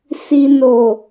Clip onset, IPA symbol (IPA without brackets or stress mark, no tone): s